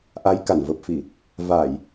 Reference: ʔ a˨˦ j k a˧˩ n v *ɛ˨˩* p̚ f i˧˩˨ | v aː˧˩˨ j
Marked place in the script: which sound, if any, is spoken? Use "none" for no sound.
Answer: ə˨˩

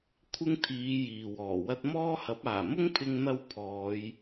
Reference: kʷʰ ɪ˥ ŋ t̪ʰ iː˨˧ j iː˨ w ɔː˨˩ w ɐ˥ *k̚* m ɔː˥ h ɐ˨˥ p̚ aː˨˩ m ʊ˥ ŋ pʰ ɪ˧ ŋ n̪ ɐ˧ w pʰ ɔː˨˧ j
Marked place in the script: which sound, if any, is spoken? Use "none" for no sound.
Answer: t̚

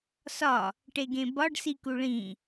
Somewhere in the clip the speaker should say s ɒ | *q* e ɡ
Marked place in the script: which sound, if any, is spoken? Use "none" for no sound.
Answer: ʈ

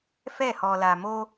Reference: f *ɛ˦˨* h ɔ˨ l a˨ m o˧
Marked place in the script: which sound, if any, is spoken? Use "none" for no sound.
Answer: ɛ˦˨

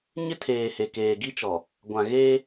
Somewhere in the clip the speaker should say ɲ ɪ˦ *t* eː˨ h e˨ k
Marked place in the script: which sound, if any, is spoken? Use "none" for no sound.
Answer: tʰ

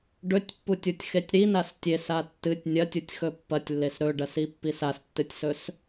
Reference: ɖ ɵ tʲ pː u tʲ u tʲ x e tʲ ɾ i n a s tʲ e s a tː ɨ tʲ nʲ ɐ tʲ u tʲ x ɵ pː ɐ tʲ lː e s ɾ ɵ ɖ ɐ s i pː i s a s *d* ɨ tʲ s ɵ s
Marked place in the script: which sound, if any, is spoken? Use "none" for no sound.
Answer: tː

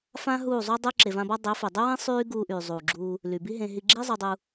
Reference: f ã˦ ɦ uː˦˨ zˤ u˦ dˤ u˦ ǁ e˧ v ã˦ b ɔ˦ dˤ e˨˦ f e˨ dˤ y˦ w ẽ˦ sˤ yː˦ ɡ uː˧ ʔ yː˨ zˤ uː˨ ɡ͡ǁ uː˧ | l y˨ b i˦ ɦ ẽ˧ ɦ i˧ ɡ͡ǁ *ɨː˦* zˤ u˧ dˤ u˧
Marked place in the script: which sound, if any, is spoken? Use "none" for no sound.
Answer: iː˦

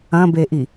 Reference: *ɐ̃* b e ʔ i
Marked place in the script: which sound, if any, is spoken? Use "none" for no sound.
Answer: ɐ̃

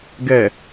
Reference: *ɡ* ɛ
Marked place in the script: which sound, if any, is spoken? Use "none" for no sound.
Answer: ɡ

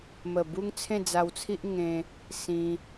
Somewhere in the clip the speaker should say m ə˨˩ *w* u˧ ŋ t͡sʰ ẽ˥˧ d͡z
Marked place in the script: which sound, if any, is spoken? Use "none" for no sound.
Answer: b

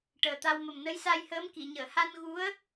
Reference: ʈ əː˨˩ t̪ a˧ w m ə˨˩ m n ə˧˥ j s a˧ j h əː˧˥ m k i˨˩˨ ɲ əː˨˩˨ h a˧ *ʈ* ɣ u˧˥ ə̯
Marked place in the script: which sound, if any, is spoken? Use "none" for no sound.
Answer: n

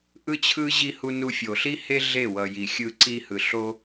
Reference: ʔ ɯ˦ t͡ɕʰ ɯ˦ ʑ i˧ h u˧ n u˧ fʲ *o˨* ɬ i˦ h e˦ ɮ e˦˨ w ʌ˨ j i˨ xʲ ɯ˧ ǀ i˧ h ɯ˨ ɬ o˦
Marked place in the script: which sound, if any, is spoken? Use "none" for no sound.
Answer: o˨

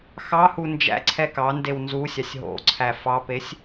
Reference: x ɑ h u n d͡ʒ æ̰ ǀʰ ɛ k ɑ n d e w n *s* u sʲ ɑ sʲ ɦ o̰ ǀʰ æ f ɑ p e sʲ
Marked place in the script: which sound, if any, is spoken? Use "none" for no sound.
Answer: z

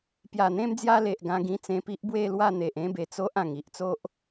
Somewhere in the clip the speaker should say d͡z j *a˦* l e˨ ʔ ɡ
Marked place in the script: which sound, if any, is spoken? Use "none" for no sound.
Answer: a˦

